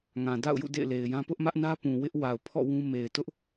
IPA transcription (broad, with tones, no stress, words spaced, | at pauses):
ŋã˨ da̰˦˨ʊ̯jṵ˦˨ dḛ˦˨ɪ̯le˨ɪ̯jã˦ pʊ˦ʔmä˦ʔnä˦ pũ˨ wɪ˦ʔ wa˨ʊ̯pʰɔ̰˦˨ wũ˦ me˨ɪ̯tʊ˦ʔ